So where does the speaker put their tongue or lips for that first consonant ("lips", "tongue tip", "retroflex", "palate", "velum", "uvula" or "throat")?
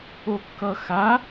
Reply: velum